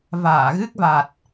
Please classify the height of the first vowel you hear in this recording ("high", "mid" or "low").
low